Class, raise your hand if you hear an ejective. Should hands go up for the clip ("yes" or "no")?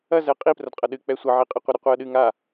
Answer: yes